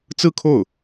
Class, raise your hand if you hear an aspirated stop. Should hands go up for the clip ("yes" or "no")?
yes